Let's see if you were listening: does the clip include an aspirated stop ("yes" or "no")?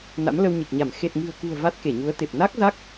no